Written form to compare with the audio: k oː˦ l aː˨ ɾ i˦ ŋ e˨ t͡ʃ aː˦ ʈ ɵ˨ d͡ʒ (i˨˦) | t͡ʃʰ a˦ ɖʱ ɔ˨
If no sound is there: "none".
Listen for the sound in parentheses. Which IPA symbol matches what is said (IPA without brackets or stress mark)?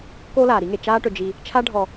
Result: i˦